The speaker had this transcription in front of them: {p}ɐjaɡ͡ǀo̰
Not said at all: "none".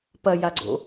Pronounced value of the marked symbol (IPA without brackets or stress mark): p